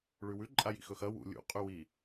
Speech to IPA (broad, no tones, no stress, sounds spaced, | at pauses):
ɭ ʉ w ʉ ǃʼ a j ḭ x ɵ x ɐ w ṵ lʲ ṵ qʼ ʉ w i